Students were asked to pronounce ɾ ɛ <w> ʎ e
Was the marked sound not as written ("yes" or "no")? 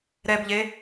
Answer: yes